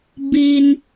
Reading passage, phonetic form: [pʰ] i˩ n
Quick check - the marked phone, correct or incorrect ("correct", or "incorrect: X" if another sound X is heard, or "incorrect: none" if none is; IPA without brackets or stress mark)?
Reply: incorrect: b